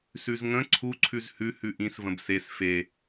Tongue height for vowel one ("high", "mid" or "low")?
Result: high